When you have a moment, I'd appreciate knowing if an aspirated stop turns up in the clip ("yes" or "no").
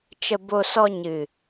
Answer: no